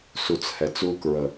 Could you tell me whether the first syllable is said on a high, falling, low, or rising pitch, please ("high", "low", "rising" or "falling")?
low